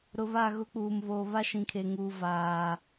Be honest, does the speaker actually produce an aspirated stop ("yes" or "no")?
yes